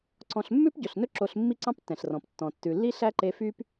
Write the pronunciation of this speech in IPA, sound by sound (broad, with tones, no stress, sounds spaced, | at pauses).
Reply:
ǀ ɔ̃˧ ɬ mː ʉ˦ p ɟ ɵ˨ ɬ n ɵ˦ ǁ o˧ ɬ mː i˦ ǀ ɑ̃˦ p tː ɛ̃˨ ɬ r ɔ̃˨ p tː ɔ̃˨ tː ʉ˨ lː i˦ ɬ æ˦ ǃ e˧ f y˦ p